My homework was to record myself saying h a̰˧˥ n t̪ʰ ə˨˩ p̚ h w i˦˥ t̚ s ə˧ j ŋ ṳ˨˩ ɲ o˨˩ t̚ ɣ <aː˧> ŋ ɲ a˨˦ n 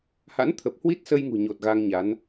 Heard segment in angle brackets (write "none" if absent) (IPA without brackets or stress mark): a˧